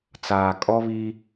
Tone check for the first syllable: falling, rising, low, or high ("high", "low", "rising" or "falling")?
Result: low